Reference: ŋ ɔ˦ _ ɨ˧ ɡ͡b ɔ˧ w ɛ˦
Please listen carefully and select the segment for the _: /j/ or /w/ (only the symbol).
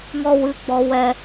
w